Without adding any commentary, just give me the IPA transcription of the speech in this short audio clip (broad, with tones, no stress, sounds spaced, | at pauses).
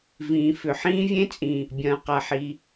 v ĩː˩ f ʏ˩ ħ ĩː˥ vʲ ẽ˥ t͡sʼ ĩ˩ | bʲ ɐ̃ː˩ q a˩ ħ i˩